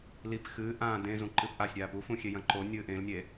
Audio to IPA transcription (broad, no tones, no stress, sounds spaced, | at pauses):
l i p x ɨː ʔ ãː d ẽ z ũ ǃ ɨ p ʔ a sʲ ɾʲ aː p u f ũ xʲ e j ɐ̃ ǃ o nʲ ɨː ʔ ẽ l nʲ e